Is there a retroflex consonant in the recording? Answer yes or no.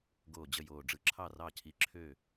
yes